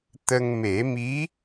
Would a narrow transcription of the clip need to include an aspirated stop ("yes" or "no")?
no